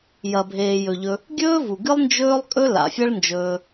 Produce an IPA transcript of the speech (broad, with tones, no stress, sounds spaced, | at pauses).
j ɐ˨ bʱ eː˨ j ɵ˨ ʎ ɵ˧ | ɡʲ ɵː˦ v u˨ ɡ ɨ˦ lˠ n d͡ʒ ɵː˦ lˠ kʼ ɵ˦ l a̰˨ fʲ ɐ˦ ɭ n d͡ʒ ɵː˧